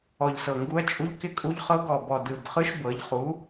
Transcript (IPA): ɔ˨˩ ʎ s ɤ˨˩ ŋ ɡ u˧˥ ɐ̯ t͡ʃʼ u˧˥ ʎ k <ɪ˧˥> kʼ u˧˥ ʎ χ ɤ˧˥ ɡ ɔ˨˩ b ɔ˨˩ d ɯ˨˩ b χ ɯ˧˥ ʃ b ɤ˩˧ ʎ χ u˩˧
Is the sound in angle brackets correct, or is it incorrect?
correct